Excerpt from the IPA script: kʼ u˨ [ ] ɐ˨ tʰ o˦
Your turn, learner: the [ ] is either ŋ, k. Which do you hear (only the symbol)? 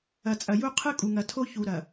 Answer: ŋ